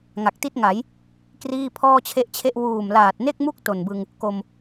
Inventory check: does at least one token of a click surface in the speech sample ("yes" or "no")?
no